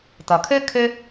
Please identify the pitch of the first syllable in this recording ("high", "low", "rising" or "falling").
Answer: low